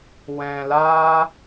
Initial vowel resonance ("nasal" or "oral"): nasal